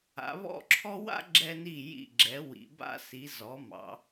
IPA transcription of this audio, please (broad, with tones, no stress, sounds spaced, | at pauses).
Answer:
a̰˩˧ β ɔ̰˥˧ ǁʰ ɔ˥ w a̰˥ ɡ͡ǁ ɛ˧ n i˧˩ j ḭ˧˩ ɡ͡ǁ ɛ˩˧ w ḭ˩˧ b a̰˥ s i˩˧ z ɔ˩˧ m ɑ̰˩˧